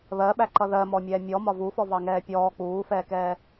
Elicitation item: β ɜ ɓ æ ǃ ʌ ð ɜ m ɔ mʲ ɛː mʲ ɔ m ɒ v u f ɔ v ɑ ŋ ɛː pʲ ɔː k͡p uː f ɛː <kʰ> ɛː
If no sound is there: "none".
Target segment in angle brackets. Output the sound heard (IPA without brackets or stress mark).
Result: k